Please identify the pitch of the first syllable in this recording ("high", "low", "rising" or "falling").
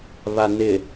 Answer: low